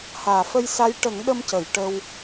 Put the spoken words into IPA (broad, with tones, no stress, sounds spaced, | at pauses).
h aː˨˩˨ f ə˧ j s a˧˥ j ʈ ə˨˩˦ ŋ ɗ ə˧ m c ə˨˩˨ j ʈ ə˧ w